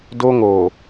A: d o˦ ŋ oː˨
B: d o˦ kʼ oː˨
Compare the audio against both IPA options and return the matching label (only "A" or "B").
A